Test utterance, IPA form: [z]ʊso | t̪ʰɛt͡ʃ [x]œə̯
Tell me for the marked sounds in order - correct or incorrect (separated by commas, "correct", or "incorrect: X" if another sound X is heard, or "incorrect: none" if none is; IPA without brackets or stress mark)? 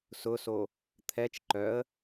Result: incorrect: s, incorrect: ǃ